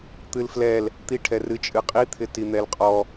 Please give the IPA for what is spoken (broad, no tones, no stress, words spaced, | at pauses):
t̪ɨlflɛl | t̪iʈʰɛrɨ t͡ʃʼɨqʼit̪ʰɪti n̪ɛlqʼɔ